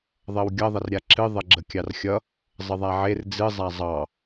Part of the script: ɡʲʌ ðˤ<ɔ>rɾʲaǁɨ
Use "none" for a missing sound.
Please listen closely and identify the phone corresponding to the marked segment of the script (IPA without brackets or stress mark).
ʌ